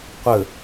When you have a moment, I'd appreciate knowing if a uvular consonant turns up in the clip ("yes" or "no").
yes